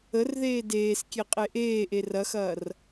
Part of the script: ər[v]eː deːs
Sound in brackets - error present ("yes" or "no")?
yes